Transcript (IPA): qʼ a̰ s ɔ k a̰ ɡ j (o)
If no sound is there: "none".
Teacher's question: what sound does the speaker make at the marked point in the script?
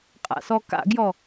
ɔ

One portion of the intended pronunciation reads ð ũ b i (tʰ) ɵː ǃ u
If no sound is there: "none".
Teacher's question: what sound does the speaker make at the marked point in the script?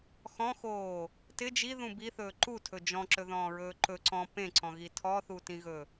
θ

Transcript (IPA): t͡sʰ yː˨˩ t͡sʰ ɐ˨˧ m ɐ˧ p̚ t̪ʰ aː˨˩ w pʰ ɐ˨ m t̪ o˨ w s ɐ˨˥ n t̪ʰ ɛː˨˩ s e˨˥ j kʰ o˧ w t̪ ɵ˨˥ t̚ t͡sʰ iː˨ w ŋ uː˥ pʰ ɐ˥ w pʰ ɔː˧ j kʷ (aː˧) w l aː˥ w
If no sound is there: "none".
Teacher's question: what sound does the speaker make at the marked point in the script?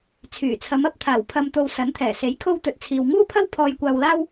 aː˧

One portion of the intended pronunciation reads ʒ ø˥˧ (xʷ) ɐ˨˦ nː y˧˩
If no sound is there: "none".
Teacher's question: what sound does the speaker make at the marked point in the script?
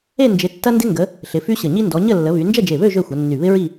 xʷ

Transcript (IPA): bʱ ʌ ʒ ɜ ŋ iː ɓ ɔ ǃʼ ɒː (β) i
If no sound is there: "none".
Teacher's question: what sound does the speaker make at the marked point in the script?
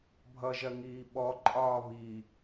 β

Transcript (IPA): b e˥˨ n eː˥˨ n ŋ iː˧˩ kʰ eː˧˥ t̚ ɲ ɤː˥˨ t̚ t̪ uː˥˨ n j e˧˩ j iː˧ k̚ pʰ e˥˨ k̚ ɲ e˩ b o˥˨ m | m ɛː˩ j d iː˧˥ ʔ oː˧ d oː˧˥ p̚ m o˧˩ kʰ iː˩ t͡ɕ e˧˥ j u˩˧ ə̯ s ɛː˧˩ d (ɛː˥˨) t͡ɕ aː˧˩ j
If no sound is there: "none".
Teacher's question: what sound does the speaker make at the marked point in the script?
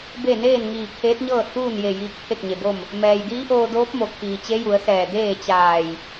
eː˥˨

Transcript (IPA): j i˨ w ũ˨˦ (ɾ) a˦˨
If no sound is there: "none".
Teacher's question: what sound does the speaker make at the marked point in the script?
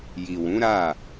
ɾ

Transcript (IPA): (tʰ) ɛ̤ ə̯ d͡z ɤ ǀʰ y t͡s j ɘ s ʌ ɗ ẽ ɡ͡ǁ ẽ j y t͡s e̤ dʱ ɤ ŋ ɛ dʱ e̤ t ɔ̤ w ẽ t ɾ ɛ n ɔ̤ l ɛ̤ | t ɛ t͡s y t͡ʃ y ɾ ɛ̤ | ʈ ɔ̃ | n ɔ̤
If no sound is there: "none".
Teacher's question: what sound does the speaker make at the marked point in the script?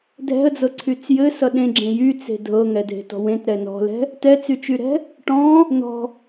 dʱ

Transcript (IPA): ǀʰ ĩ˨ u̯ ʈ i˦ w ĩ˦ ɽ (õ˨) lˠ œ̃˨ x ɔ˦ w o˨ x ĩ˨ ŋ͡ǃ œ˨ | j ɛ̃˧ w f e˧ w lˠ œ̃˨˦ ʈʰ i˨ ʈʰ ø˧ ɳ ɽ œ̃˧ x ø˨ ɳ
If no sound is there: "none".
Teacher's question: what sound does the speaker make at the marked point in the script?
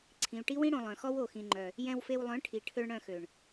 õ˨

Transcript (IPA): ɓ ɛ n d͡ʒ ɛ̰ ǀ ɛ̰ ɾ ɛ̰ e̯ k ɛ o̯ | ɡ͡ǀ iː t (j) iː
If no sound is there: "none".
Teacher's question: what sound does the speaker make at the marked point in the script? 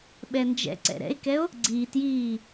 j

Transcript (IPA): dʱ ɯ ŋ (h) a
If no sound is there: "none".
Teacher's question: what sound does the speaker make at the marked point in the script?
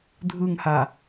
h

